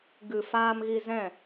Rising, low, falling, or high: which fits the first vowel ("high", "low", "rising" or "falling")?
low